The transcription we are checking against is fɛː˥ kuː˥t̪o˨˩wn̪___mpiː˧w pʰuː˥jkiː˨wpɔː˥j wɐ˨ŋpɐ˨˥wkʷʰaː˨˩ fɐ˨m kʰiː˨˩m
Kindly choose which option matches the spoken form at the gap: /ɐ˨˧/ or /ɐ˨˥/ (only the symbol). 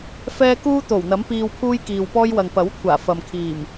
ɐ˨˥